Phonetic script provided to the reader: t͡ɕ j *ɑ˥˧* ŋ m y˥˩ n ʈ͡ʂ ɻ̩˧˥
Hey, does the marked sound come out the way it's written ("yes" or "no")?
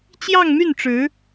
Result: yes